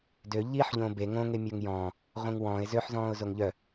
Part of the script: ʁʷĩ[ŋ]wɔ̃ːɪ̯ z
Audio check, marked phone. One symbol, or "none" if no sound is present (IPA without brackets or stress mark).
ŋ